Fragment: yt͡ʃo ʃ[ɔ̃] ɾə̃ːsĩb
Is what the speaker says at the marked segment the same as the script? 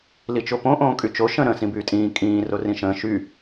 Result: no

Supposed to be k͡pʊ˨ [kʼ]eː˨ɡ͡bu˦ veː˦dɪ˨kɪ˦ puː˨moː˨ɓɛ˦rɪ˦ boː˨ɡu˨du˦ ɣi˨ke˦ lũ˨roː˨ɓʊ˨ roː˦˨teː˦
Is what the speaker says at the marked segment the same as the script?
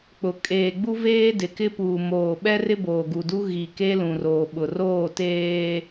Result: yes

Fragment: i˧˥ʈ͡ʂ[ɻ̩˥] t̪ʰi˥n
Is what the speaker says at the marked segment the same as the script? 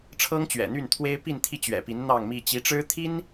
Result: yes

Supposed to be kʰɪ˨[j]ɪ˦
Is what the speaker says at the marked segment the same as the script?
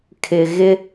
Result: no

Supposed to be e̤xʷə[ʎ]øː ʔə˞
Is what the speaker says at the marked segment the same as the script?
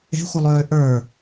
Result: no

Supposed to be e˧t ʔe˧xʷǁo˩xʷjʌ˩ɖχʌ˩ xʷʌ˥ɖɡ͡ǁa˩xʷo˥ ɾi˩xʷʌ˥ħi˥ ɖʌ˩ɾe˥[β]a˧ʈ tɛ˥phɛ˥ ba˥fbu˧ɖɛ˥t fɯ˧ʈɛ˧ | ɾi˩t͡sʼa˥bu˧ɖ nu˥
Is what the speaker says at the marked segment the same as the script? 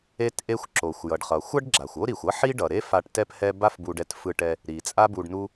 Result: no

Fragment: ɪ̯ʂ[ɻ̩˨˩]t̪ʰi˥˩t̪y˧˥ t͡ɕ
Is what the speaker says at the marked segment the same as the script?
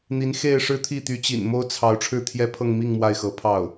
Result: no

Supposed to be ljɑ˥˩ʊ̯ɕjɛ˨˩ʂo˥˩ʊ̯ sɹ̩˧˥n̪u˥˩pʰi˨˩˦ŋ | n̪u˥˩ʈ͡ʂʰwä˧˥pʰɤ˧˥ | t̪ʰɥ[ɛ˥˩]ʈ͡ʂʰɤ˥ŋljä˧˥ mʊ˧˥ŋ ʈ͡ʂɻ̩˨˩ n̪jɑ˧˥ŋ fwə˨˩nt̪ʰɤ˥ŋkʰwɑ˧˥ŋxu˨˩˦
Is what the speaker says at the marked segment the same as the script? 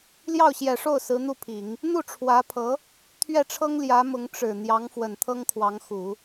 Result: yes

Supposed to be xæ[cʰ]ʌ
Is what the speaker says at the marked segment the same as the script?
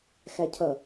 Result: yes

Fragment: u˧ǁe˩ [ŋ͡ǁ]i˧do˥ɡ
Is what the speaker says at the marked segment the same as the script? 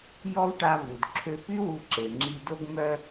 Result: yes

